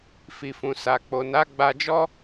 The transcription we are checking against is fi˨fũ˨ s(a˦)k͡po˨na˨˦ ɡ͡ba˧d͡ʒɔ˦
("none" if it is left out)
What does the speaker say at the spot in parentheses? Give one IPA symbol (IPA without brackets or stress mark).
a˨